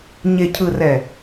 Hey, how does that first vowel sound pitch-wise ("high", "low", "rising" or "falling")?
low